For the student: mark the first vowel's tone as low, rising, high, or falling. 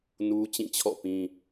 high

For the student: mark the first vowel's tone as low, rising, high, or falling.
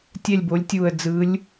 falling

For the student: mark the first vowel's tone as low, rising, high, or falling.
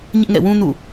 high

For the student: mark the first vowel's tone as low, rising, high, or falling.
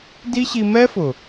high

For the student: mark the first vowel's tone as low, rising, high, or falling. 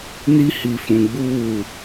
high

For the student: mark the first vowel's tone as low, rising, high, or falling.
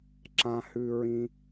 low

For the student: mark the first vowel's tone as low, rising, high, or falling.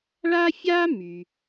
high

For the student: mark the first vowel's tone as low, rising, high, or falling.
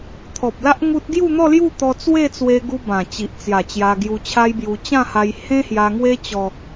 low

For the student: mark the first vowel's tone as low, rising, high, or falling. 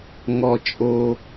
low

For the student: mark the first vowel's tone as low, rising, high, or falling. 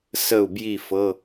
falling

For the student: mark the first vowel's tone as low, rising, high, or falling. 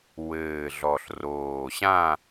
low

